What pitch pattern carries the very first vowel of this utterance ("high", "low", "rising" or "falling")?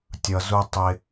low